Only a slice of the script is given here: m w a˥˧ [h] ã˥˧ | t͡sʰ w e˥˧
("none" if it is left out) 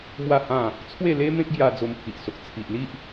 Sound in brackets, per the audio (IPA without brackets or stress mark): h